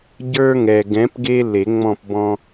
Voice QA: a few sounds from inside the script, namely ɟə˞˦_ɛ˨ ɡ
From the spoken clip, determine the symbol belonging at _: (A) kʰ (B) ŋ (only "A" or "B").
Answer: B